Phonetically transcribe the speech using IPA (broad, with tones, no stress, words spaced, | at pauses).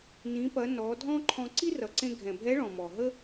nĩ˩˧pɐ˩˧ nɔ˩˧dʱɔ̃˥ǃʰɔ̃˧ ǀi˥rʌ˩ǀẽ˧ ɡʱɛ̃˩bʱɛ˧˥ɭɔ̃˩ mɔ˩ ɦə˥